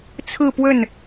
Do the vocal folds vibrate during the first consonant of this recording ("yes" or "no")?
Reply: no